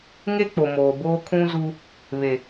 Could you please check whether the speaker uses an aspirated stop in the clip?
yes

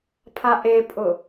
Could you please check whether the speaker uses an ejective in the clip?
yes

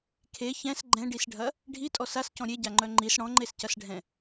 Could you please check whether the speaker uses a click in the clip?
yes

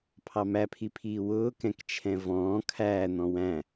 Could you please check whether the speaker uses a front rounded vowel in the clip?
no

